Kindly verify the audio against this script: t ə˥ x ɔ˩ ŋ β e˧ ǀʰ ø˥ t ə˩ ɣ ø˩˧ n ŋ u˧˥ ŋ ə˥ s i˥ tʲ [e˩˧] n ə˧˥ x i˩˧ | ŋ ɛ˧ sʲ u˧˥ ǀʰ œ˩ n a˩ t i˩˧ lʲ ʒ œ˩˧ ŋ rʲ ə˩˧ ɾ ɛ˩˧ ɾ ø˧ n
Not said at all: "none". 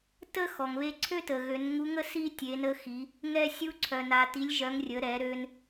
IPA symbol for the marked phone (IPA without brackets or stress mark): e˩˧